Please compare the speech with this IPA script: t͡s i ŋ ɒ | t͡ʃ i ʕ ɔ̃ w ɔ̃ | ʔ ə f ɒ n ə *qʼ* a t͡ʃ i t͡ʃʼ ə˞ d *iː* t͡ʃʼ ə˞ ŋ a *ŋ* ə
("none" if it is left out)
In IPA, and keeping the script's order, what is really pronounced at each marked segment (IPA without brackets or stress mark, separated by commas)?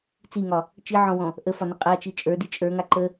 qʼ, i, ǃ